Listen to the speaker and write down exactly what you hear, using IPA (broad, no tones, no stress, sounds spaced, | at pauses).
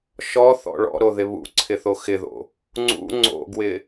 ʃ ɔ θ ɔ̰ ɭ ɔ̰ ɾ o ð ɪ β ṵ ǀʰ ɪ θ o x ɪ ð o̰ | ŋ͡ǀ ṵ ŋ͡ǀ o̰ ɡ w ɪ